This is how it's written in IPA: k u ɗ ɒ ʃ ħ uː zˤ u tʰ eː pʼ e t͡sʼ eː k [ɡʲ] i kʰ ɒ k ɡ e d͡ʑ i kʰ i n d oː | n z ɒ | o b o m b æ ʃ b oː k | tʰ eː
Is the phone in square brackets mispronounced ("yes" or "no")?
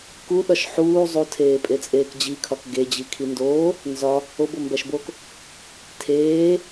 yes